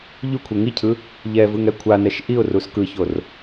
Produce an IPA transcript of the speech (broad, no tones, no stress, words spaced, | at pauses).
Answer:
ʎukʷʰe ŋicʰɯ | ʎɛvɯŋ ɛkʷʰanɛʃ ʔiʊ̯rus kɯçor